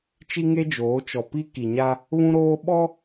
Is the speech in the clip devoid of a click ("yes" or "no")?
yes